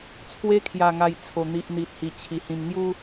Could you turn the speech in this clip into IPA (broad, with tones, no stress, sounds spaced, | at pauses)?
t͡sʰ w e˧ kʰ j a˨˩ ŋ a˨˩ j t͡sʰ o˨˩ n̪ i˨ ʔ n̪ i˨ t̚ h i˨˩ t͡ɕʰ i˨˩ h ĩ˨˩ m ŋ j u˦